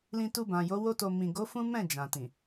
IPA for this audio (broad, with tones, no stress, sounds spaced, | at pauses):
l ĩ˧ t u˧ b ã˨ j o˨˦ w o˦ t o˧ m ĩ˨ ɡ o˨˦ f ũ˦ m ɛ̃˦˨ d͡ʒ ã˨ t ĩ˨